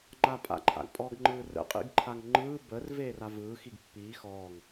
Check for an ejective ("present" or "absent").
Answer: present